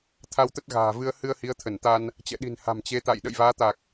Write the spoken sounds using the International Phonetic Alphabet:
t̪ʰa˧wt̪ə˦˥t̚ɣa̤ː˨˩vɨ˧ə̯ hɨ˧ə̯hi˨˦ə̯t̪ʰə˧˩nt̪a˧n | t͡ɕɛ̰˧˨ɗi̤˨˩nha̤˨˩m t͡ɕe˨˦t̪a̰˧˨j ɗə̰˧˨jvaː˨˦ t̪a˨˩k̚

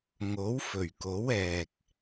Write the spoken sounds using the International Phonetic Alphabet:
ŋo˨˥wfɵ˨˩ɥko˨˥wɛː˨k̚

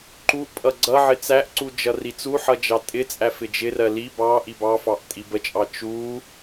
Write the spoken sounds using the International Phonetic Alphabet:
ǃuʔpʼʌ ɡ͡ǀʌʕɪ t͡sæʔǀu d͡ʒʌrit͡suħʌ d͡ʒɑtʼɪt͡sʼæ fɪd͡ʒɪrɜ li bɑ ʔibɑfɑʔ tʼibət͡ʃʼɑ t͡ʃu

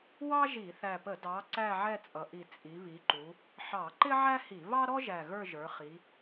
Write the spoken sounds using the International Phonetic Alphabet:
wɑ˥ʒi˧˩˧θæ˨˩pə˧˩˧ dɑ˩˧ ǀæ˦˨ʕɛ˦˨t͡sʼʌ˩˧ʔi˨˩ t͡sʼi˩˧βi˩˧ǃu˩˧ | ħɑ˧˩˧ǃɪ˥ ʕæ˥hi˧˩˧ βɑ˥ɾɔ˥ʒæ˨˩ ɣə˞˦˨ʒə˞˩˧ χi˩˧

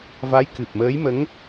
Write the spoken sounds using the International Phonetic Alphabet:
va˧˥jkɨ˨˩p̚məː˧˥jmə˧˥ŋ

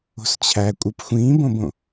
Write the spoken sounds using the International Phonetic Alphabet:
o̤st͡ɕʰækʷʼɯp xʷĩːbõbõ

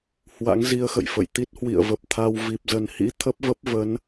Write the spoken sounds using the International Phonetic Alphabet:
hwa̰˧˥ŋzi˧ə̯xə̰˧˨jfə̰˧˨j t̪i˦˥t̚hwḭ˧˨ə̯və˨˩p̚ t̪ʰa˧w vi˨˩p̚zə˨˩nhḭ˧˥ t̪ʰə˦˥p̚və˦˥p̚ və˨˦n

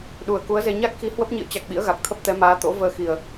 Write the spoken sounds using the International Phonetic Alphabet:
ɗu˨˩ə̯ ku˨˦ə̯ze˧ ɲa˦˥k̚xi˨˦ hwə˦˥p̚ɲḭ˧˨ə̯ t͡ɕa˨˩k̚ ɓḭ˧˥ə̯ɣa˨˩k̚t̪ʰə˦˥p̚ t̪ɛ˨˦maː˨˦t̪o̰˧˥ vəː˧xi˨˩ə̯

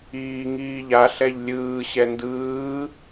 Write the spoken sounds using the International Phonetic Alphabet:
iːŋiːʎa ɬɛʎlʲɯː ɕɛndɯː

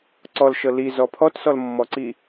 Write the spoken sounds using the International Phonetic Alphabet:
ǀɔlʃɤ lizɔ pʰɔtsɔlmːɔǀi

